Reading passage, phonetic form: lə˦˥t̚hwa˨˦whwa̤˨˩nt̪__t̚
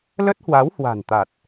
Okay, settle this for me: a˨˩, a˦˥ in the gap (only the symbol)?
a˨˩